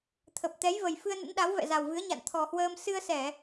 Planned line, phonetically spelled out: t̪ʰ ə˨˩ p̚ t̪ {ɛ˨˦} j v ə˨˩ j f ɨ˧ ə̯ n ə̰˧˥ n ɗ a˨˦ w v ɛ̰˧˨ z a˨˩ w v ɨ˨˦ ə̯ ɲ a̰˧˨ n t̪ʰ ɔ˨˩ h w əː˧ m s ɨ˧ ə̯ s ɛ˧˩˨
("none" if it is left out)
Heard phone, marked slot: ɛ˨˦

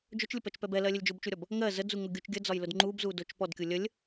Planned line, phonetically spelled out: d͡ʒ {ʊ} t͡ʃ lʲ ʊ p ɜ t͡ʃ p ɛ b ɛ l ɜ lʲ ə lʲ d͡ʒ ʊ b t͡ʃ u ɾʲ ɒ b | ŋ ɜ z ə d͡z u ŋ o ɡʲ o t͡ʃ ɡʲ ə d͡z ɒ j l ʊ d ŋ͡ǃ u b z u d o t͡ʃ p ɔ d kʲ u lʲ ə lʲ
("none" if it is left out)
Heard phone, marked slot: ʊ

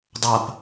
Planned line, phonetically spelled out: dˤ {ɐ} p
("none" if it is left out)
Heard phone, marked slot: ɐ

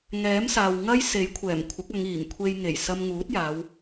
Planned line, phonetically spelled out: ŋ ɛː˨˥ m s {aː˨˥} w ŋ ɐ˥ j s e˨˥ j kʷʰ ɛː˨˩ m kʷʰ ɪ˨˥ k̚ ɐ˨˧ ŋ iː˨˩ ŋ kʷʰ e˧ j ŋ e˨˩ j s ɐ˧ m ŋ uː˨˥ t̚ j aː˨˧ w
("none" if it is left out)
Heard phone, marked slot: aː˨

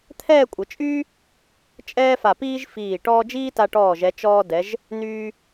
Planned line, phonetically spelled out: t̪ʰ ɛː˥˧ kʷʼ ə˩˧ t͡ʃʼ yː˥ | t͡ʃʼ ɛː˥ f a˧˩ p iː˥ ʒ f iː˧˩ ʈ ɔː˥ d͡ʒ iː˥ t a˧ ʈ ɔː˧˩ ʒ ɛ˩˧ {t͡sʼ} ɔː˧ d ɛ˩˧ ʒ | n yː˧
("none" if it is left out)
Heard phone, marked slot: t͡ʃ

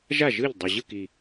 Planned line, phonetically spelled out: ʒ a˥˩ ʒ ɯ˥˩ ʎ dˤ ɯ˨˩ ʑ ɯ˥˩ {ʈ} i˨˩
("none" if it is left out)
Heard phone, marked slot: k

